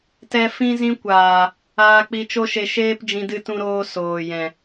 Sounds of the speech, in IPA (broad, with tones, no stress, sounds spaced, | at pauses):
t ɛ˧ f ĩ˦ z ĩ˦ kʷ aː˨ | aː˧ k͡p i˧ t͡ʃ o˦ ʃ e˧ ʃ eː˦ p d͡ʒ ĩ˧ d ɨ˧ t ũ˧ ɾ oː˧ s oː˨ j ɛ̃˨